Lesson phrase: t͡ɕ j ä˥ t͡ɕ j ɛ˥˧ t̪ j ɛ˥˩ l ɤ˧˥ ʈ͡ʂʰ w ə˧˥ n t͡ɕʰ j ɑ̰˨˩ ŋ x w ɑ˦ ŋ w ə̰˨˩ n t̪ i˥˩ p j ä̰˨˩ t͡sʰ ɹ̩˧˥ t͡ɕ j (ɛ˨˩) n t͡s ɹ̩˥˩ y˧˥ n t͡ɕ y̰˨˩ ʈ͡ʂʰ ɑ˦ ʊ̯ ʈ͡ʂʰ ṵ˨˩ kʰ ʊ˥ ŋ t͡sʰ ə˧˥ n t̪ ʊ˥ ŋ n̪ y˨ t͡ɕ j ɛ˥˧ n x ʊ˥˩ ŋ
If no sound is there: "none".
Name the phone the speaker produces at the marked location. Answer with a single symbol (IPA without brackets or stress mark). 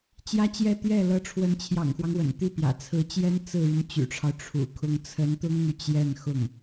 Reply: ɛ˥